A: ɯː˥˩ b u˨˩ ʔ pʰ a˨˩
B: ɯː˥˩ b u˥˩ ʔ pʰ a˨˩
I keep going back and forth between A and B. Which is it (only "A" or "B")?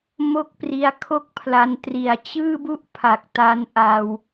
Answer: B